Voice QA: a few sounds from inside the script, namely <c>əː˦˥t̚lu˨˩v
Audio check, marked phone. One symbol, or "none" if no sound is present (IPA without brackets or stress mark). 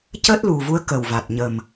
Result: c